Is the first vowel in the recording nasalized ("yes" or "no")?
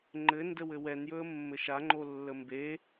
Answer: no